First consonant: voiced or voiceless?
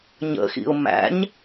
voiced